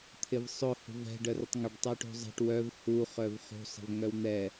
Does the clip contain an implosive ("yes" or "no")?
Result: no